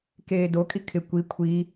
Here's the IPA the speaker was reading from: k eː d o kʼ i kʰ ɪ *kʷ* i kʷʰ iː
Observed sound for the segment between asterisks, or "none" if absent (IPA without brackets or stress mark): kʷ